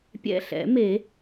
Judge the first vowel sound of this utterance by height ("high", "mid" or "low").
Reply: mid